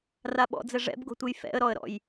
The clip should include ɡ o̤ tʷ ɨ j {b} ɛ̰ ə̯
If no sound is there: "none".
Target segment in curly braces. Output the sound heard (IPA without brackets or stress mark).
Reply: f